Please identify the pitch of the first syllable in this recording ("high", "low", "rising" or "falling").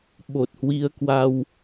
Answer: low